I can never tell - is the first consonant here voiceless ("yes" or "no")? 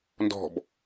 no